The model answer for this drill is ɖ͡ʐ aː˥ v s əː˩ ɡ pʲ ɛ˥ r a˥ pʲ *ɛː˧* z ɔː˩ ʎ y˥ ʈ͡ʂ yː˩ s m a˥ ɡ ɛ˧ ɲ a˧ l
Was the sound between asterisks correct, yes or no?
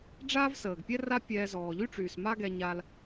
yes